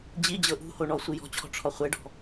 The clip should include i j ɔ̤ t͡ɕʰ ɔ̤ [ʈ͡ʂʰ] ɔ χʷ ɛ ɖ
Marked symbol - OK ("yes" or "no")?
yes